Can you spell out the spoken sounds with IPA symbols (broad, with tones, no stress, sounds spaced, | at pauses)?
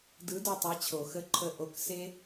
d ɯ˨˥ d o˦˨ tˤ e˨˥ t͡ɕʰ o˨˩˦ x ə˧˥˧ ǃʰ ə˦˨ ʔ o˨˥ k s e˥